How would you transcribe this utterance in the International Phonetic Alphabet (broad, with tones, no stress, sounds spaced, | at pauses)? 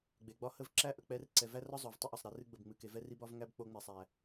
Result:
ɡ͡b e˨ ɡ͡b ɒ˦ h ə˦˨ v ǁ æ˦ ʔ ə˨ k͡p ɛ˧ r ǀ ɛ˨ v æ˦ r ɒ˦ zˤ o˨ v tˤ ɨ˦ ʔ ɒ˨ sˤ ɾ æ˧ r ɨ˦ ɡ͡b ə˨ b ŋ͡m ɨ˨ k e˧ v ɛ˦ r i˦ b ɒ˦ v ŋ æ˦ b k͡p o˧ ŋ͡m ɛ˨ sˤ æ˨